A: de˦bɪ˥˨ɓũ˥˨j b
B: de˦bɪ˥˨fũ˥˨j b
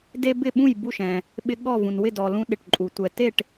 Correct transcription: A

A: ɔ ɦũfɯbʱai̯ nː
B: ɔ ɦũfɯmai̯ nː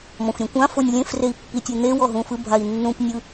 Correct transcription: A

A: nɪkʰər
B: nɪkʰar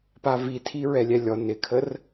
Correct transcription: A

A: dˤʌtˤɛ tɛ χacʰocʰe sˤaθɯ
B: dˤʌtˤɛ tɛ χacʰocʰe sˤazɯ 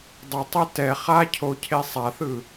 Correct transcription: A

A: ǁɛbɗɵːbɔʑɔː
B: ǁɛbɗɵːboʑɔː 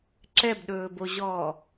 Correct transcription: B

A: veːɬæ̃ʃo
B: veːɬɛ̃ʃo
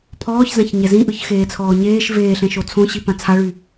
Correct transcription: B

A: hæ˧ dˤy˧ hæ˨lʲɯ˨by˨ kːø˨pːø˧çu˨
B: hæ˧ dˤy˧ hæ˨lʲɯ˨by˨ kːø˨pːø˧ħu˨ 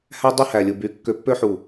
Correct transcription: B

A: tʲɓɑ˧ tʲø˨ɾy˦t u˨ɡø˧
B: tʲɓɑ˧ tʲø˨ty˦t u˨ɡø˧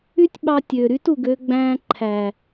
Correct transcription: A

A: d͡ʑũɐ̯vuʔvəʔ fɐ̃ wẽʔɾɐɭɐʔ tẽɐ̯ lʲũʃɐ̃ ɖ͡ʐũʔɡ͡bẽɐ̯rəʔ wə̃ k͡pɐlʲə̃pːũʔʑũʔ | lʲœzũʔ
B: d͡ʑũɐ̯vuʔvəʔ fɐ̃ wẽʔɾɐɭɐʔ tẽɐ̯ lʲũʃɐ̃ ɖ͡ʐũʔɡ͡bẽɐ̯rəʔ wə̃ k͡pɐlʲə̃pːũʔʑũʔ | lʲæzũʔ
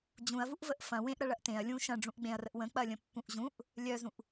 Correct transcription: A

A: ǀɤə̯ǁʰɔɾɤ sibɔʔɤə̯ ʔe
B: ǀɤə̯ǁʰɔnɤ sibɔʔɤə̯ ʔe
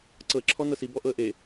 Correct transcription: B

